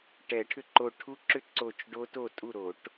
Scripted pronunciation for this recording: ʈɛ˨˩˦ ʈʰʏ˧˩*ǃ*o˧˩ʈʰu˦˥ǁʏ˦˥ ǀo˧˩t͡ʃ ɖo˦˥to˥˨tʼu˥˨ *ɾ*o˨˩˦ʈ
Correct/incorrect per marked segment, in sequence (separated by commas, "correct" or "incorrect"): correct, correct